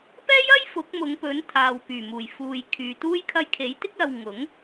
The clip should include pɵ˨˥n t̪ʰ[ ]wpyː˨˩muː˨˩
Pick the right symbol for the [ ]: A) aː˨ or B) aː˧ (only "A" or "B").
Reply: A